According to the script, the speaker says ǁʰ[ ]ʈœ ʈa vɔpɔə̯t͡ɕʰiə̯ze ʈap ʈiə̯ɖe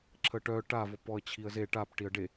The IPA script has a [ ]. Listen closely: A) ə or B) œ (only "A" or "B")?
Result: A